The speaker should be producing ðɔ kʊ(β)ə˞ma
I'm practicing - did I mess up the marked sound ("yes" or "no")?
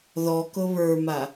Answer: no